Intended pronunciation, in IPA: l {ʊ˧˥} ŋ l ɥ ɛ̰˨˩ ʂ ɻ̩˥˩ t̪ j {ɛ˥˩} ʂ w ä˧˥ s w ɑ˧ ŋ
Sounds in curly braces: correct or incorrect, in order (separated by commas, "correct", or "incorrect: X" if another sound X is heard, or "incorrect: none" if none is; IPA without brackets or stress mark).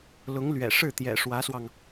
correct, incorrect: ɛ̰˨˩